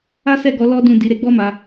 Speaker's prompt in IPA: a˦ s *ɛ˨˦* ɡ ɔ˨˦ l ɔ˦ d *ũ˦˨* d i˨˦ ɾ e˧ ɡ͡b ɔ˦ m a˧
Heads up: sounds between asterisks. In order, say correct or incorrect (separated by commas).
incorrect, correct